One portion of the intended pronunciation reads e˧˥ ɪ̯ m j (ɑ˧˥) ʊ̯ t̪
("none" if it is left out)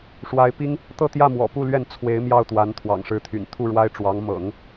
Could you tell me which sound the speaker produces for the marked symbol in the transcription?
ɑ˥˩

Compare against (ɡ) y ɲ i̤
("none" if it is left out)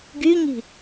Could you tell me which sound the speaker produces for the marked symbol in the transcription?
ɡ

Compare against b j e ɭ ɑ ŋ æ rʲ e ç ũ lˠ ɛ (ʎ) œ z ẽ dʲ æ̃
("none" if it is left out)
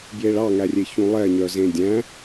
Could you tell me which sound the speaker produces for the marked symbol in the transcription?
ɲ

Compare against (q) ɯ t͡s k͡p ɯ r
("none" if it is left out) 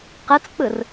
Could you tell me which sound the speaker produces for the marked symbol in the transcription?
q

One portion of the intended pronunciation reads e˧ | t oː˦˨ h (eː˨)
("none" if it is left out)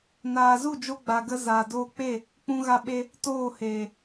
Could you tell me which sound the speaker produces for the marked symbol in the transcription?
eː˨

